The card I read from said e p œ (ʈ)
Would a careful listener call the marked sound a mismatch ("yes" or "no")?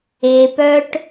no